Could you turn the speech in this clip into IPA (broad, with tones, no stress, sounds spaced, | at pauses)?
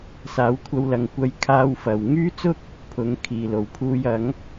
s aː˨˥ w kʷʰ ɐ˧ w l ɐ˨ ŋ kʷ ɐ˧ j kʰ aː˧ w f ɐ˨˩ w ŋ yː˥ t͡s ʊ˥ k̚ | pʰ ʊ˨˥ ŋ kʰ iː˨˩ l o˨˩ w pʰ uː˧ j ɐ˨˥ ŋ